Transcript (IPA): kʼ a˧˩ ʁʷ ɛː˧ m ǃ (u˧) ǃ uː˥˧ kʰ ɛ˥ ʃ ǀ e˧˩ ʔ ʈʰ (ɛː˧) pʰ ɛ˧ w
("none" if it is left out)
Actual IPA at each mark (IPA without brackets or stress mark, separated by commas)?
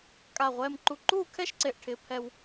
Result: u˧, ɪː˧